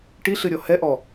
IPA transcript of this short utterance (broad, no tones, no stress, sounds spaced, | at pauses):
ʈ i ɬ ɨ ɾʲ ɔ h ɛ ʔ ɔ